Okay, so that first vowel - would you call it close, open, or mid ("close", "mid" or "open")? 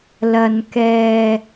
open